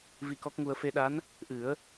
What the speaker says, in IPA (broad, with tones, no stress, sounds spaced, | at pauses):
v i˧ k ɔ˦˥ k̚ ŋ u˧ ə̯ f e˧ ɗ a˧˥ n | ʔ ɨ˨˩˦ ə̯